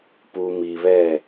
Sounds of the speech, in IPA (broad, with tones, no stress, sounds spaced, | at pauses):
p u˨ m i˨ β ɛ˦˨